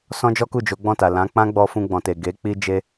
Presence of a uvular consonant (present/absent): absent